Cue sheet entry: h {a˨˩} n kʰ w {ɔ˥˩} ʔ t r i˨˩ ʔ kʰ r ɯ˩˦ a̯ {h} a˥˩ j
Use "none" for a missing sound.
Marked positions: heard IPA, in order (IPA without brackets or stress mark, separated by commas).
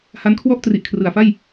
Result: a˦˥, ɔ˥˩, f